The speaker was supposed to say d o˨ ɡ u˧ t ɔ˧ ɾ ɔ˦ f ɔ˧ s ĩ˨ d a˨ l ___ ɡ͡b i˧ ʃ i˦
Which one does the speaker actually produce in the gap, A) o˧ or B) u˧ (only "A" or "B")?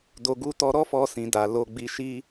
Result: A